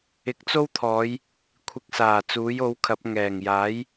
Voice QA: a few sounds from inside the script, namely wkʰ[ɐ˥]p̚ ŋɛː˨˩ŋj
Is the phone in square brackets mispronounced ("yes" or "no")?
yes